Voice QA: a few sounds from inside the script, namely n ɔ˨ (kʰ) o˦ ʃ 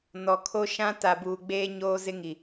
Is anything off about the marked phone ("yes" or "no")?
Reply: no